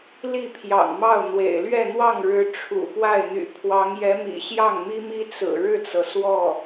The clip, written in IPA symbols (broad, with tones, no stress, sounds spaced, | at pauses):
l i˥˩ pʰ j ɑ̰˨˩ ŋ m ɑ˥˩ ʊ̯ n̪ w ḛ˨˩ ɪ̯ l ɥ ɛ˥˧ n̪ w ɑ˥˩ ŋ ɻ ɻ̩˧˥ ʈ͡ʂʰ ṵ˨˩ p w a˥˩ ɪ̯ n̪ y̰˨˩ pʰ w ɑ˧˥ ŋ j ɛ˧˥ m ḭ˨˩ ɕ j ɑ˥˩ ŋ m i˥ m i˥ t͡s ɹ̩˨˩ ɻ ɻ̩˥˩ t͡s ɤ˩ s w ɔ˥˩